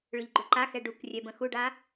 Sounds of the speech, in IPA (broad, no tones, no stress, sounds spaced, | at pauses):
ɭ ʏ ʎ ɡ͡ǃ ʏ ǃ a x ɛ ɖ u k rʲ ɛ b ə̃ x u ɖ a